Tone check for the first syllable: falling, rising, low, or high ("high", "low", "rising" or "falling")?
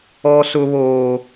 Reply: high